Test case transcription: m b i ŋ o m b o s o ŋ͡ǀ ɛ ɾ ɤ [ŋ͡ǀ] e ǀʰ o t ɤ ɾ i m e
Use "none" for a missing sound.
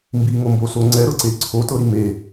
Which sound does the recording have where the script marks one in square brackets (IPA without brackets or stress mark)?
ǀ